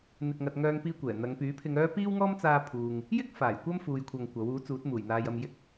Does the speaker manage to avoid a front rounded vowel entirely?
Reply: no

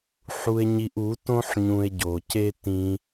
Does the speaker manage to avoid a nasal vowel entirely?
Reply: no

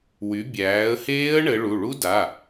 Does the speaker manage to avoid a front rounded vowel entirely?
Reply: no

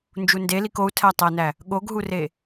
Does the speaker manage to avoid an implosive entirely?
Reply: no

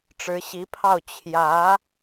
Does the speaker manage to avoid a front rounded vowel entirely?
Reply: yes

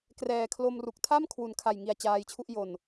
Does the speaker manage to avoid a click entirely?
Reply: yes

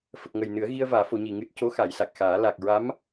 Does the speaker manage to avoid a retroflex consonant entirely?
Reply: yes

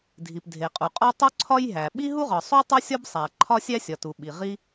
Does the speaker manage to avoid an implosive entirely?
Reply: no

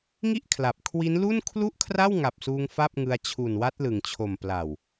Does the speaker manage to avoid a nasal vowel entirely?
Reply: yes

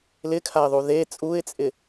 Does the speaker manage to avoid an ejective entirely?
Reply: no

